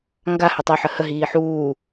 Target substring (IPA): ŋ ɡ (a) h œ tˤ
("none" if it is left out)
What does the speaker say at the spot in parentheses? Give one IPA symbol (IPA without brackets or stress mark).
a